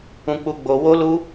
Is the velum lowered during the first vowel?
yes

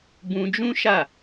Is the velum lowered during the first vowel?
yes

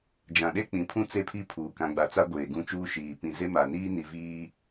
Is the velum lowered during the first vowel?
yes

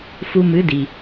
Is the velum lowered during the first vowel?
no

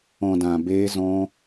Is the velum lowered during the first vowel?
yes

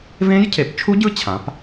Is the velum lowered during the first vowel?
yes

